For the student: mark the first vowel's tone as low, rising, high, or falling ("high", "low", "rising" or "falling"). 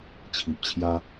low